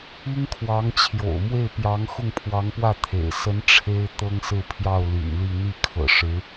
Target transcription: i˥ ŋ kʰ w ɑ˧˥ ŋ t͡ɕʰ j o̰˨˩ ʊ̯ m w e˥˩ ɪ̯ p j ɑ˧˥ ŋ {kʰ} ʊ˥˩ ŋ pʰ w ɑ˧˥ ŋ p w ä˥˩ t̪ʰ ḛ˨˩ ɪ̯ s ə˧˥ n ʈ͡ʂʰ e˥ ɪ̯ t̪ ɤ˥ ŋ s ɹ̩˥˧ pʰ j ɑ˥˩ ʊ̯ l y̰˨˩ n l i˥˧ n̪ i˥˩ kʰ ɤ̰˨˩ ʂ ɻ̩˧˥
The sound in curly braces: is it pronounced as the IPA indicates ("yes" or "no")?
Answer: no